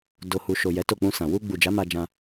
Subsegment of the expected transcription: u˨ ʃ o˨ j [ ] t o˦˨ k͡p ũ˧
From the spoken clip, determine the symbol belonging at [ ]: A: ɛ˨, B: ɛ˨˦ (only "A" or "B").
B